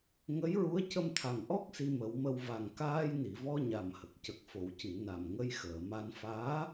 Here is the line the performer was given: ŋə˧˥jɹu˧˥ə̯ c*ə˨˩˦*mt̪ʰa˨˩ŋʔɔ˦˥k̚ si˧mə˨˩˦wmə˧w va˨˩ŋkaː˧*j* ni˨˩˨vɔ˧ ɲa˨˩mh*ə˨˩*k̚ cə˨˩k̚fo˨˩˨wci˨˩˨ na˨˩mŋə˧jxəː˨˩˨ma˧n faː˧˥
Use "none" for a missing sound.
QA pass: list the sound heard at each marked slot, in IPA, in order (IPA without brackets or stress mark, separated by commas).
ə˧, j, ə˨˩